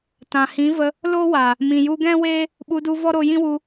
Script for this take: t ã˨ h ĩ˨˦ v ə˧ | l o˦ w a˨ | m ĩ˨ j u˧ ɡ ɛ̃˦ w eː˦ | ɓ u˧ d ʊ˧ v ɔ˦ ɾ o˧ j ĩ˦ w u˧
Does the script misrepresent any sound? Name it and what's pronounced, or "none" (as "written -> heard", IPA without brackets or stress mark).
ʊ˧ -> u˧